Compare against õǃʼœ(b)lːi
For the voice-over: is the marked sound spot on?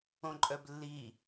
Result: yes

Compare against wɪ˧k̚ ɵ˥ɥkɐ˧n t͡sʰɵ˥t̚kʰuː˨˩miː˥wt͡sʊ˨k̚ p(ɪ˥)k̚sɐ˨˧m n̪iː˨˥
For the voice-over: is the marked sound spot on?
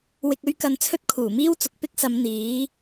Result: yes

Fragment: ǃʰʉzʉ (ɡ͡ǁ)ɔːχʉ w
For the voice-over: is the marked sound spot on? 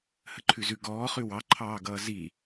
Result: no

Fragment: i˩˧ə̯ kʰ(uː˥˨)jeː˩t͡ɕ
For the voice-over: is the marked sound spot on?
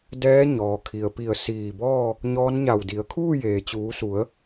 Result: yes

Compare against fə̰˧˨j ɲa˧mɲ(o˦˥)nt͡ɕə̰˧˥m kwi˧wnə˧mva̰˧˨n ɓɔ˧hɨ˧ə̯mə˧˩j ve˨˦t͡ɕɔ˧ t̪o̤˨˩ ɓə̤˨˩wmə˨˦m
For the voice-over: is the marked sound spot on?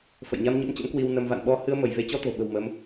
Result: no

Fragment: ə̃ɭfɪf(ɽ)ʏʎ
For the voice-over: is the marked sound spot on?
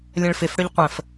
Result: yes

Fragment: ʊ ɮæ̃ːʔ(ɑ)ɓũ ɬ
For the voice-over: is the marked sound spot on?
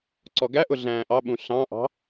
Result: yes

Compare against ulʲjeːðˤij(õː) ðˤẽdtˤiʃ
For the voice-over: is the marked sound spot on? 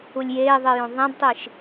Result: no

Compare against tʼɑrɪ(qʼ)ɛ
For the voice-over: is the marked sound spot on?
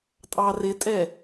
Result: no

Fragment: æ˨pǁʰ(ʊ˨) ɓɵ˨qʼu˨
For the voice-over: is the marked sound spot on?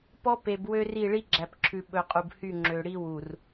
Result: no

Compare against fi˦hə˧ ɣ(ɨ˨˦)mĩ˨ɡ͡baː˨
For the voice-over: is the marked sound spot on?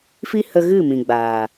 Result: no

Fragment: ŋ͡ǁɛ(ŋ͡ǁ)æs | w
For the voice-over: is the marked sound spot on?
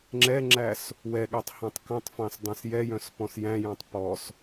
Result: yes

